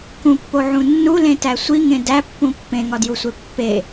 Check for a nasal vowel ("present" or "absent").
present